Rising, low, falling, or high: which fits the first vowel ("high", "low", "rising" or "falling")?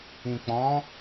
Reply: low